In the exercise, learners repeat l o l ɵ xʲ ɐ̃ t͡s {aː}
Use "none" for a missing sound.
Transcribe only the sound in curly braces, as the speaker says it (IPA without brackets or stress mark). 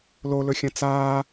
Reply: aː